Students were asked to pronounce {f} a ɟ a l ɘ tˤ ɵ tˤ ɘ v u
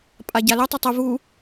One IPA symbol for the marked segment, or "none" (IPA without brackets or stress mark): pʼ